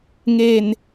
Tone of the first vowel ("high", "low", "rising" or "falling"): low